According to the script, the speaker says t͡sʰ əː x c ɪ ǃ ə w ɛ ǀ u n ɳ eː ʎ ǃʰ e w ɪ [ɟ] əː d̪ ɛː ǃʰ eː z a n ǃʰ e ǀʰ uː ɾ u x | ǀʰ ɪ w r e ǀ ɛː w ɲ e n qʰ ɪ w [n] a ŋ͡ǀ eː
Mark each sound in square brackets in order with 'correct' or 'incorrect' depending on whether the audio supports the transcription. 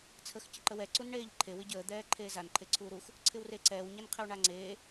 correct, incorrect: ɳ

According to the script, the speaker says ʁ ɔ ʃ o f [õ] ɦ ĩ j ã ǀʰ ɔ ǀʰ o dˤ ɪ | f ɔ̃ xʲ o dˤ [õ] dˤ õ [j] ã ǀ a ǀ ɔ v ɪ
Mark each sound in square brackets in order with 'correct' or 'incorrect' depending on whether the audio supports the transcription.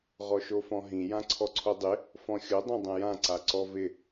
incorrect: ɔ̃, correct, correct

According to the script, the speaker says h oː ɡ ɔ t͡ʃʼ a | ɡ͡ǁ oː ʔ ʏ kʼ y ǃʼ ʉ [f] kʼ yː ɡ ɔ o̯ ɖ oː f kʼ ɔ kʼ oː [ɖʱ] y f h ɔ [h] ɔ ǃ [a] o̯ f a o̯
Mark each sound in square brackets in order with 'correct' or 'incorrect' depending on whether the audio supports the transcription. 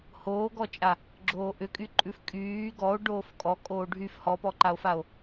correct, correct, incorrect: p, correct

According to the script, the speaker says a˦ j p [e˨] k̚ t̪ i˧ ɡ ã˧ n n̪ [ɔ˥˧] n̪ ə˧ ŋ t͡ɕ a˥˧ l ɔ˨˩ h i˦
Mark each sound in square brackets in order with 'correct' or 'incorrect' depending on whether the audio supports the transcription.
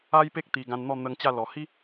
incorrect: e˦, correct

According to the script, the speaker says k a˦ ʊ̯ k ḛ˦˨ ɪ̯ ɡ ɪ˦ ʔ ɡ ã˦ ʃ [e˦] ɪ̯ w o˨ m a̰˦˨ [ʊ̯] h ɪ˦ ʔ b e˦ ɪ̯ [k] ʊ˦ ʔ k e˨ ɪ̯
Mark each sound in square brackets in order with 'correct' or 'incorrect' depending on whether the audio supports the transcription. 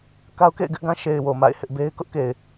incorrect: e˨, incorrect: ɪ̯, correct

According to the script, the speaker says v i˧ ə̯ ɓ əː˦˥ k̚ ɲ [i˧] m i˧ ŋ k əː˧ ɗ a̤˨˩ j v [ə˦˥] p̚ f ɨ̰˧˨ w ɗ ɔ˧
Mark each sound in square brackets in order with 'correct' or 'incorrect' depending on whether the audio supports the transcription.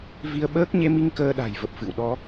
incorrect: e˧, incorrect: ə˨˩

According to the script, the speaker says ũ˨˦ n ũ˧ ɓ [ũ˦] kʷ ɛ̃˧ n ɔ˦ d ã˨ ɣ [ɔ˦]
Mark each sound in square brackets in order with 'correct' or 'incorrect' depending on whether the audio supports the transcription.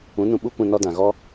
incorrect: u˦, correct

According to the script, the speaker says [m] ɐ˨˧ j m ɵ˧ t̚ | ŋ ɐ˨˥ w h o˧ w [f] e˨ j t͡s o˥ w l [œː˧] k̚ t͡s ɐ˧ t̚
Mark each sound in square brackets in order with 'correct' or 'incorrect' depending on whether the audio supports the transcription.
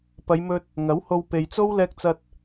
incorrect: p, incorrect: p, incorrect: ɛː˧

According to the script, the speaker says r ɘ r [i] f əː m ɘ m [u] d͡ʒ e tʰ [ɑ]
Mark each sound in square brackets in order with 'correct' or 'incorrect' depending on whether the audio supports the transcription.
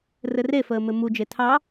incorrect: e, correct, correct

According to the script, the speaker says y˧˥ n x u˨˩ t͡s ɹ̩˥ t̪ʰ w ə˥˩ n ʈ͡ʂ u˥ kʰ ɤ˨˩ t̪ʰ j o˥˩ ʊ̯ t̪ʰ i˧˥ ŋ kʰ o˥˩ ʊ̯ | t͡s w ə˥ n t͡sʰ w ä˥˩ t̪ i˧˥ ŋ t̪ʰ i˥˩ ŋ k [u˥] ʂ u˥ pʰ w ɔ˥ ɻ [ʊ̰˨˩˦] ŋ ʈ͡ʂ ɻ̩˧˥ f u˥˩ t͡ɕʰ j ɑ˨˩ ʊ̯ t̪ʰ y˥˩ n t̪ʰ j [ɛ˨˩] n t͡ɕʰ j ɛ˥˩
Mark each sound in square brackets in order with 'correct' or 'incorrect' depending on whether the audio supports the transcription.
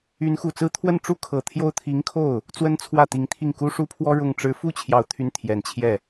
correct, incorrect: ʊ˥˩, correct

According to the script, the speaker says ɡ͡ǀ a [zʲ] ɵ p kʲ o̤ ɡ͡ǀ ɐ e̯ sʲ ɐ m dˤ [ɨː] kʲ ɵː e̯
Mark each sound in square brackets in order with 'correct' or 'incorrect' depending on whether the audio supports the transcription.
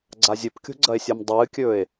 correct, correct

